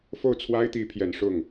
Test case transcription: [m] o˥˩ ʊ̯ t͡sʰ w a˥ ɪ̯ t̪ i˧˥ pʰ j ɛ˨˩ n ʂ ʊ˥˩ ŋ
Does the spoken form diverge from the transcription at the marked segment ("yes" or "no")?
yes